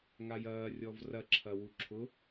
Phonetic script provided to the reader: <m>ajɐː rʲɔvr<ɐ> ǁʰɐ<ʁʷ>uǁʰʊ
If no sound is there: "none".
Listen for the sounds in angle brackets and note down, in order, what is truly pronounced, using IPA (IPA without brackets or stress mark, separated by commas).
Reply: ŋ, ɐ, w